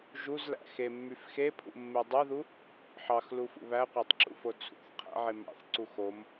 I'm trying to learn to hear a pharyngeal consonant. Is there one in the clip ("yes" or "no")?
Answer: yes